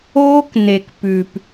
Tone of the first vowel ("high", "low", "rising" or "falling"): high